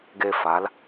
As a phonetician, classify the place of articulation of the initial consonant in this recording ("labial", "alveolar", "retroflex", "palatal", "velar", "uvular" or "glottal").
velar